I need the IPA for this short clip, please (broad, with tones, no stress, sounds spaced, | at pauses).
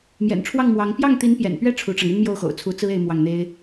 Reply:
m j ɛ̰˨˩ n ʈ͡ʂʰ w ɑ˥˩ ŋ m w ɑ˧˥ ŋ p j ɑ˥˩ ŋ t̪ i˧˥ n p j ɛ̰˨˩ n p ɥ ɛ˥˩ ʈ͡ʂʰ u˧˥ ʈ͡ʂ ɑ˧ ŋ y˥ n m j o˥˩ ʊ̯ x o̰˨˩ ʊ̯ t͡sʰ u˧˥ t͡s ɹ̩˥ e˥ ɪ̯ m w ɑ˥˩ ŋ n̪ e˥ ɪ̯